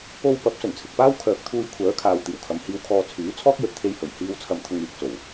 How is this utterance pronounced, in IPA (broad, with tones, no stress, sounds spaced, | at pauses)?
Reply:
o˧ w p ɐ˨˥ p̚ s ɵ˨˩ n t͡sʰ ɪ˨ k̚ p aː˥ w kʰ œː˨ k̚ t̪ʰ uː˧ j kʷʰ œː˨˥ kʰ aː˨ w t̪ iː˨˩ w kʰ ɐ˨ m h iː˧ w kʰ ɔː˧ t͡sʰ yː˨˥ t͡sʰ ɔː˥ k̚ j ɵ˨ t̚ t̪ʰ e˧ j h ɵ˨˩ ɥ h iː˧ w t͡sʰ ɐ˧ m t̪ʰ ʊ˧ ŋ yː˨ k̚ t͡s o˨˩ w